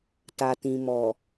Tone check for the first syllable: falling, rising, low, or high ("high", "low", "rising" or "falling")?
low